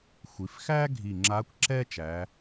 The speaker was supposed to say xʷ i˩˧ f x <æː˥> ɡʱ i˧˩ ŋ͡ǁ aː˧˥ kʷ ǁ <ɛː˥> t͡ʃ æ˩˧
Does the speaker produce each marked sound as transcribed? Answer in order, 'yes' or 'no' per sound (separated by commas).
yes, yes